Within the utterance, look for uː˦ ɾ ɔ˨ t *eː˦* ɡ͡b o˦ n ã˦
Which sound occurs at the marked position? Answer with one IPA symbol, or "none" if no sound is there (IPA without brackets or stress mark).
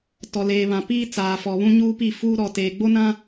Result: eː˨